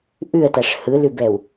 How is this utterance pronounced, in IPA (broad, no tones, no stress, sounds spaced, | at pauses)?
ʔ ʉ ə̯ t a ʂ h ɯ l ʉ b ɛ w